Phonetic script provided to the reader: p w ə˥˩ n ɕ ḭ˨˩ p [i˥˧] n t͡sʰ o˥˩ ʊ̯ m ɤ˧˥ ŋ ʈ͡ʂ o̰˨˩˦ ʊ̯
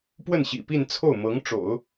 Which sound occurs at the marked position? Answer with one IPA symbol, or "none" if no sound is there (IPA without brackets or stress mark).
i˥˧